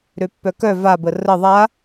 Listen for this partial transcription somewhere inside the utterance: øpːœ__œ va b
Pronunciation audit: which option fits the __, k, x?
k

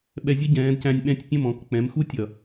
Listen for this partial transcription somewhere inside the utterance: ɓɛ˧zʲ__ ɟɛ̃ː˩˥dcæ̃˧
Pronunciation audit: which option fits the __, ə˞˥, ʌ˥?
ʌ˥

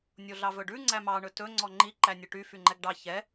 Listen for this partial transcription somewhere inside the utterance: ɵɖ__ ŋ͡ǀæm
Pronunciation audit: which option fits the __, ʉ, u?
ʉ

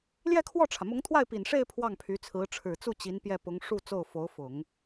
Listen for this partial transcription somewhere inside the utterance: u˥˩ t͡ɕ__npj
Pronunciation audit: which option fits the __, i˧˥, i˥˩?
i˧˥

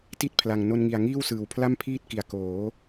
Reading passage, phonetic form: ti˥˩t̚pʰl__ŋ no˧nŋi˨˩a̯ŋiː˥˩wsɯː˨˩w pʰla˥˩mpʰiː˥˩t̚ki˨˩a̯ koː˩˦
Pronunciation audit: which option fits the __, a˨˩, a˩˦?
a˨˩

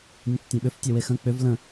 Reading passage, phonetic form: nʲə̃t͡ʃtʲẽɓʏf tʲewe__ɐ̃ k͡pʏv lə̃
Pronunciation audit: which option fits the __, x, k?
x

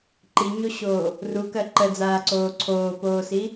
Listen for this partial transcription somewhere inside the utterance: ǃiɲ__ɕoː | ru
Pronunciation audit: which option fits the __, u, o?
o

